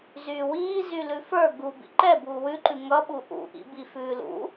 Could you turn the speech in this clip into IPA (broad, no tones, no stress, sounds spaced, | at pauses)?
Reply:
z yː w iː z y l ʉ f ə˞ ɡ u b ḭ ǃ ɛ b uː w ʉ ǃ ʉ ŋ ʌ ɓ u ʔ ṵ ʔ ḭ b i f ʉː l ṵ